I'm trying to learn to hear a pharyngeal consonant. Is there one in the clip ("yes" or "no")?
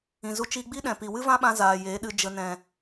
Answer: no